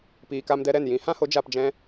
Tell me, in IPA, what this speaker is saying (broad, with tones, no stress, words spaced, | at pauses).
piː˨ka˧mdɛ˧ ɾɛ˦˨n jĩ˨˦hã˦ho˨˦ d͡ʒa˧pd͡ʒɛ̃˦